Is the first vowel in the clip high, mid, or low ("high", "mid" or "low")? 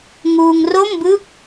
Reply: high